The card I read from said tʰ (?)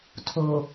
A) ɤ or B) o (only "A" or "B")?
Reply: B